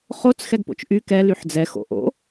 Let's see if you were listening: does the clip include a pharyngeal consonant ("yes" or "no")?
yes